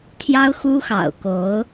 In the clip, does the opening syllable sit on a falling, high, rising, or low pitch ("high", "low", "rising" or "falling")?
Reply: high